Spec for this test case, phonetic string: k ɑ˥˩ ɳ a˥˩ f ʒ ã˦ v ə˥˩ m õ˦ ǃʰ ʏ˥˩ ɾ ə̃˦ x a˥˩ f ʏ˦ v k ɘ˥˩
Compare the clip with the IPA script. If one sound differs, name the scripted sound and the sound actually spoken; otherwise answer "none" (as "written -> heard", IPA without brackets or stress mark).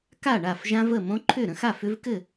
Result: ɑ˥˩ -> a˥˩